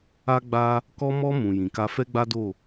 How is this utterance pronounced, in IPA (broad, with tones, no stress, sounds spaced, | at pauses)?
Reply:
a˦ ɡ͡b a˦ | k ɔ˧ m ɔ˧ m ũ˨ j ĩ˨ k a˧ f ɛ˦ ɡ͡b a˦ d o˦˨